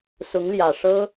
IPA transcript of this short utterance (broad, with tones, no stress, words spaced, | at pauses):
sʊ˧˥ŋljä˨˩ʂɤ˥